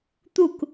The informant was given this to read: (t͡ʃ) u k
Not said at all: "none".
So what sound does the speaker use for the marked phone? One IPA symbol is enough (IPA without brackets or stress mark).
t̪